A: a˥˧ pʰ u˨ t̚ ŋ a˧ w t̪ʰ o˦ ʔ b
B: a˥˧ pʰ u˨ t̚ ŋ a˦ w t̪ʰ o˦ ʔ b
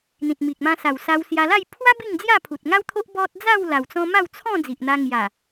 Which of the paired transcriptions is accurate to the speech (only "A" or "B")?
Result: B